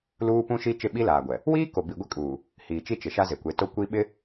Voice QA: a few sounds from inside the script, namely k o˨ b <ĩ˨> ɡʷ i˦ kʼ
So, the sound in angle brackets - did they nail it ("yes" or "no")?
no